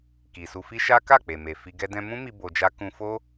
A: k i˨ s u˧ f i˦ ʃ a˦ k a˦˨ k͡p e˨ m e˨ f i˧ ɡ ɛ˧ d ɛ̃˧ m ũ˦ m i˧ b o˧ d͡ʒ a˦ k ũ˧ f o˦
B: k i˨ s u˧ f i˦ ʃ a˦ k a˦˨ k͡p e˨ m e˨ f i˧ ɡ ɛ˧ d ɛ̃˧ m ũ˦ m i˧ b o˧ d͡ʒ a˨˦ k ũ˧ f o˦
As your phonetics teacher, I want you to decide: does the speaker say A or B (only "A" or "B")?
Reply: A